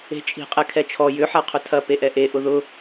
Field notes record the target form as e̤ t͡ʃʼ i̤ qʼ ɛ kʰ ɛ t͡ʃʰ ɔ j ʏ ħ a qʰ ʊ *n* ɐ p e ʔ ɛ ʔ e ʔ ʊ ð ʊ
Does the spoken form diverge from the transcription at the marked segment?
yes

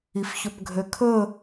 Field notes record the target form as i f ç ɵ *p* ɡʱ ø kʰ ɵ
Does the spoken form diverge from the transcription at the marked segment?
no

